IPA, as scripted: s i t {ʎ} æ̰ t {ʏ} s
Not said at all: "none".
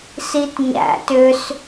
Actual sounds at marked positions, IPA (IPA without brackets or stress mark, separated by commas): ɲ, ʏ